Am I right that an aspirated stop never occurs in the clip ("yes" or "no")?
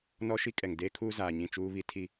no